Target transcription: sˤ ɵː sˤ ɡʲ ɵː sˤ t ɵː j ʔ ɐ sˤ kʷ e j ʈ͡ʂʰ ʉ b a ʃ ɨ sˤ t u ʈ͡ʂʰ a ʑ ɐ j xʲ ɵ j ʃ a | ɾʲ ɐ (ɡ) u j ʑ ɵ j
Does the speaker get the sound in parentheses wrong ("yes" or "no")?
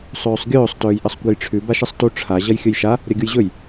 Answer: yes